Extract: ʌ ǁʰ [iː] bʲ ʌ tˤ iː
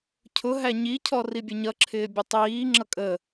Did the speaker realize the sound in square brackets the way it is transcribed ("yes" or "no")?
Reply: no